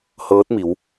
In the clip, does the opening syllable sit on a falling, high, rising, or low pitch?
rising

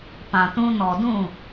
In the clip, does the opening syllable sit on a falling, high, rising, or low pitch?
low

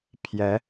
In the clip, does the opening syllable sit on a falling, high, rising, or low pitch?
rising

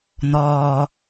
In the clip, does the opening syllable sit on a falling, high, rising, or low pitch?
low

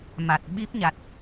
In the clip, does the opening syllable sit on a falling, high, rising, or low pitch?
low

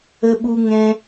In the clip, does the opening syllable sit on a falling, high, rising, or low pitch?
high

